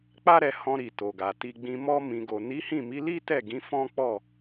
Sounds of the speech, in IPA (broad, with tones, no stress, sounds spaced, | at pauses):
k͡p a˦ ɾ ɛ˧ h ɔ̃˧ ɾ i˨ t o˨ ɡ a˨ t i˧ ɡ͡b ĩ˧ m ɔ˧ m ĩ˨ ɡ o˨ n i˨˦ h ĩ˦˨ m i˨˦ l i˦ t ɛ˦˨ ɡ ĩ˨˦ f ɔ̃˦ k͡p ɔ˦˨